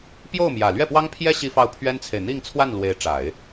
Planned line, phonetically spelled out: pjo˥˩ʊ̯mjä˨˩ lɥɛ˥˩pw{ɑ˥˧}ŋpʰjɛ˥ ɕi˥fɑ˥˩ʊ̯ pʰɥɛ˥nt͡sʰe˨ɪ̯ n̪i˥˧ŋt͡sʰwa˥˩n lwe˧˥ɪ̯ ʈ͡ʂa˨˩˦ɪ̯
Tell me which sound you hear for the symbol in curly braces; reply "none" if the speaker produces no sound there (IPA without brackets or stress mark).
ɑ˥